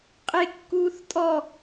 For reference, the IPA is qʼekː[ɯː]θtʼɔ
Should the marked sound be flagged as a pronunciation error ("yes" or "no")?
yes